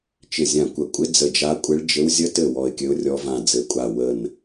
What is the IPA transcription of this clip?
t͡ʃɪ˧˩zʲã˧˩kʷə˧˩ kʷʼɪ˧˥ d͡zə˧˩d͡ʒa˧˥ kʷʼɪ˧˥ɭd͡ʒɘ˧˥w zʲə˧˥tɘ˧˩ wɔ˧˩ɪ̯kʲɘ˧˥ʊ̯rʲɔ˧˥vã˧˩ d͡zɘ˧˩kʷʼa˧˩ wə˧˩n

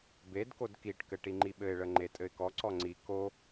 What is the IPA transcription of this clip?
bedkod kiʈkɘ ʈiŋ͡ǃiɓɘɪ̯ɭə ŋ͡ǃetʼɘɪ̯kɔǀɔ ŋ͡ǀi ko

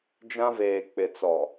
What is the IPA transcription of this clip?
d͡ʒã˦veː˨k͡pɪ˨t͡sɔ˨

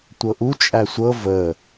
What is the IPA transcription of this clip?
tʷɤʔu t͡ʃʼæsʷɤ və

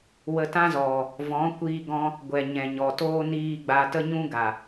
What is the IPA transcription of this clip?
wə˧tã˦zɔ˨ | vɔ̃˨˦kʷiː˧ɡɔ̃˧ | ɡʷɛ˨ ɲɛ̃˨ɲɔ˨toː˦ niː˧ ɡ͡ba˧tə˦ɲũ˦ɡa˨

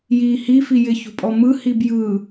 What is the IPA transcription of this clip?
jiːhi fijɪ çṳpʼɔmɯ hibjɯː

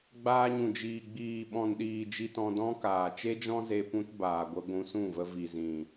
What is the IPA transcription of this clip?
ɡ͡baː˧ɲũ˨d͡ʒiː˨ ɡ͡biː˨ɓɔ̃˨nɗiː˨ d͡ʒi˧tɔ̃˧dɔ̃˦kaː˨ t͡ʃe˦d͡ʒɔ̃˦ze˧ pũ˦tbaː˨ɡʷə˧ ɡʷũ˧sũ˦˨və˧ vi˨zĩ˨

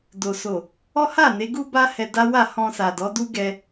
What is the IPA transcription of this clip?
do˨so˨ | ɔ˦ ha˦˨ ne˨˦ɡu˦ba˦ hɛ˧da˦ wa˦˨hɔ̃˧sa˨ dɔ˨˦du˦ɡɛ˧

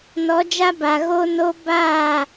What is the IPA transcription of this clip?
nɔ˨˦d͡ʒa˦ba˨ ɣo˦no˦ baː˦˨

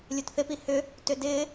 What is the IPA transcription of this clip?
lʲutθɪpi hʏ | tʏdɪː

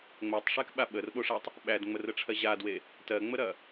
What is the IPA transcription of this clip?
ŋ͡mɜtˤʂekɓa ɓərɓoʂatˤ | ɓædŋ͡mərəʈ͡ʂʰɜ ʑadwe | tɜŋ͡məɾɐ

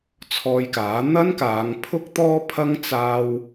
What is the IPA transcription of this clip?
t͡sʰɔː˧jkaː˨˥ n̪ɐ˥nkaː˨˧ŋpʰʊ˥k̚ t̪ɔː˥pʰɐ˥ŋ t͡saː˥w

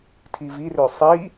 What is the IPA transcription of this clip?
tʰivirø sˤi

